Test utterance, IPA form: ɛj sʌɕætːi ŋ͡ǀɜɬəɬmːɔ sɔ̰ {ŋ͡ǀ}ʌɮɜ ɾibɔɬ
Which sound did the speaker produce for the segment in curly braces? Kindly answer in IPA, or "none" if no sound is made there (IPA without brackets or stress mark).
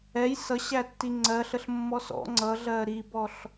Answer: ŋ͡ǀ